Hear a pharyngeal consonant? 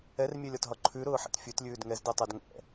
yes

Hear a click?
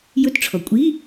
no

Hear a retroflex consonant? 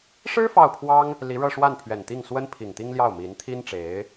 yes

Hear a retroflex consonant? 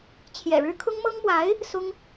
yes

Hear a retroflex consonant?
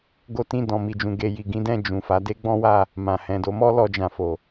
no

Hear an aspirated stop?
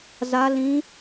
no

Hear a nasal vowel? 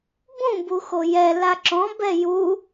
yes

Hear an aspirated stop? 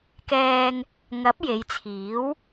yes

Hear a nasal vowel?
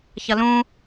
yes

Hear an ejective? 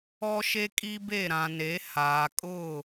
yes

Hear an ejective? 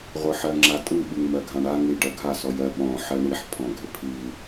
yes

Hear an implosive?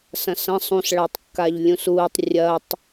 no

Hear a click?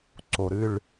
yes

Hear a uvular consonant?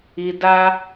no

